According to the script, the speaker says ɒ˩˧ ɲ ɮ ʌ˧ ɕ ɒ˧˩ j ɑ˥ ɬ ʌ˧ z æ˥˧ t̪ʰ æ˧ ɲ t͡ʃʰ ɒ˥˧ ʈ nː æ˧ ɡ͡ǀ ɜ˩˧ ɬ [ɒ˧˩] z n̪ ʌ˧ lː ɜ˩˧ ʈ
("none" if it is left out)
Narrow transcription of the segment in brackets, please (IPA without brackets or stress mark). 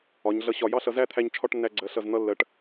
ʌ˧˩